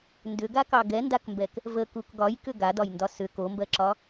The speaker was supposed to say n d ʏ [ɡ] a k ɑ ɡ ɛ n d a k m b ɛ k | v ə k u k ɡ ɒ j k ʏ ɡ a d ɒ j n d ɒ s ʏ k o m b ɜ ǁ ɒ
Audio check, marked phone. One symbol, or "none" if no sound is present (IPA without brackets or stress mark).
ɡ